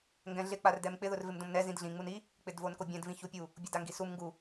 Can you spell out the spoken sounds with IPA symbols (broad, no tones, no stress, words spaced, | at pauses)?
ŋɡɛ̃ɮɪ k͡pardɛmk͡pɪ ðʊrvɪmdõmnɛ zĩdɮĩ ŋ͡muni | k͡pɪdvonkobʲɛ̃d vĩçupʲu | bʲʊdaŋɡisum ŋɡu